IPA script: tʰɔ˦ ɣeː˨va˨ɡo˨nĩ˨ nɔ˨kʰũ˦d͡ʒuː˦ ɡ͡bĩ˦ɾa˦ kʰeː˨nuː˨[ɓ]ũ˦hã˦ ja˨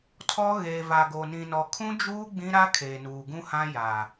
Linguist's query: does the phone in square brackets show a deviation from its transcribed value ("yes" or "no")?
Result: yes